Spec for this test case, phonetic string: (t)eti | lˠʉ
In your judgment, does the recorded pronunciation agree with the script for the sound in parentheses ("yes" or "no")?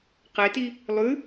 no